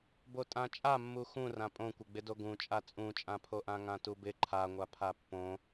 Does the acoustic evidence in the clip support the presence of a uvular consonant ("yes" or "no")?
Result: no